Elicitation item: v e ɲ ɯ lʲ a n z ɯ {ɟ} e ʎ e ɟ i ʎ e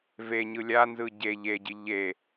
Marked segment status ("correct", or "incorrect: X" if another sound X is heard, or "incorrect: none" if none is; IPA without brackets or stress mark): correct